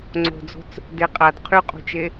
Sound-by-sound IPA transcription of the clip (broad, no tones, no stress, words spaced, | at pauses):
ŋ͡ǀo̤d͡zo̤t͡s | de qʼad qʰyqʼṳt͡ʃe